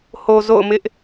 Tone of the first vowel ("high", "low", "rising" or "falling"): low